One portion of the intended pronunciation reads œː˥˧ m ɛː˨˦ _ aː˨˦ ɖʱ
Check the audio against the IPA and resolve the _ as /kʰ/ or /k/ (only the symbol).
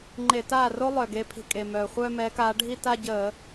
k